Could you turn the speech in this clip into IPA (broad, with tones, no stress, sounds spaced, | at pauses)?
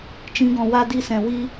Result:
t͡ʃ ĩ˨˦ ɡ ɔ̃˨ w a˧ d i˧ s ɛ̃˨ w i˧